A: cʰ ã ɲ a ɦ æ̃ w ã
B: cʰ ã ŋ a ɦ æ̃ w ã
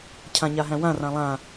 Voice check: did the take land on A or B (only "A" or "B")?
A